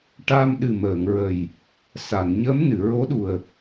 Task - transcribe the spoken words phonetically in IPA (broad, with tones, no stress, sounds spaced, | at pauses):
ʈ a˧ m ɗ ɨ˨˩ m əː˨˩˨ ŋ ɹ ə˨˩ j | s a˨˩˨ n ɲ ə˧˥ m n ɨ˨˩˨ ɹ o˧˥ ɗ u˨˩ ə̯